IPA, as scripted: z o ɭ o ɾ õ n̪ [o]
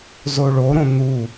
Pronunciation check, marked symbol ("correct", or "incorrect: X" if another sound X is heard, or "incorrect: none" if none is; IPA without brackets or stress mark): incorrect: u